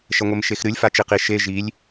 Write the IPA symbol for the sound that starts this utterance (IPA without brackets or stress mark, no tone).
ʃ